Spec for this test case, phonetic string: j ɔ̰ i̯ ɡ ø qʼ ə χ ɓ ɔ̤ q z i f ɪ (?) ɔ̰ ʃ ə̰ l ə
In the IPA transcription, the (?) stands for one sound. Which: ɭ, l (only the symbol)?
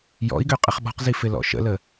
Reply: l